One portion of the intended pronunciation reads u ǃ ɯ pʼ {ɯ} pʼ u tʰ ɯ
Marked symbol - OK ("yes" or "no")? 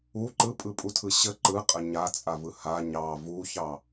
yes